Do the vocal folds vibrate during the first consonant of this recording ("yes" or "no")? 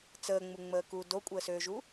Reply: no